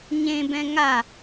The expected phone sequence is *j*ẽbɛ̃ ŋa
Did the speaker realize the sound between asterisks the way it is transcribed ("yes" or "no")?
no